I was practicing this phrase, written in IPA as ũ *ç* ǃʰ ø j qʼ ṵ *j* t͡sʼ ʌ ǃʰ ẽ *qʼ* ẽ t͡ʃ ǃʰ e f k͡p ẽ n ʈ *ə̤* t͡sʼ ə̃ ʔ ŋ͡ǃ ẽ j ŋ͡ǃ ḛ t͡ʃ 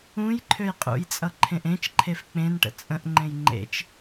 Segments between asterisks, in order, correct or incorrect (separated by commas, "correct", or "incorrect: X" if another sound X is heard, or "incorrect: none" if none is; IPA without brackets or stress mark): incorrect: j, correct, incorrect: ʔ, incorrect: ə̰